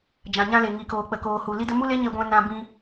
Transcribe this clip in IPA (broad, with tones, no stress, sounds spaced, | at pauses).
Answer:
d͡ʒ ã˨ ɲ ã˧ l e˨ ŋ i˨ k oː˨ k͡p ə˨ k oː˨ h u˨ l i˧ d ə˧ m u˦ l e˦ ɲ e˧ ɡʷ ɛ̃˧ n ã˧ b ĩ˧